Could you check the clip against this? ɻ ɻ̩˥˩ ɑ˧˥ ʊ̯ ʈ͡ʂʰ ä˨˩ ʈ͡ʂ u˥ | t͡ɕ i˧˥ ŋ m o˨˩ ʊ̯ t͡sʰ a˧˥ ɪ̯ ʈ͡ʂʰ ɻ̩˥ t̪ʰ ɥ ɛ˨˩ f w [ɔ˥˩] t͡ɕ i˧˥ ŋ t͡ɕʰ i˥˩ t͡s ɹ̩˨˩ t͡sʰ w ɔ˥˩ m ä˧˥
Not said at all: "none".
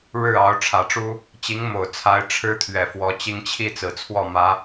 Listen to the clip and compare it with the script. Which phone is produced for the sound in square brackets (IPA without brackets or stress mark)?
ɔ˧˥